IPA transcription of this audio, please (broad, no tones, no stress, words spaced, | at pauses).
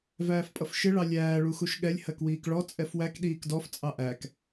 væːfpʼʌfʃɪ ɭɑlʲæː ɭuxuʃɠɛlʲ hɜkwiːkɭɔ t͡sʼɛfwæk ɗiːkdɔf t͡sʼɑʔæk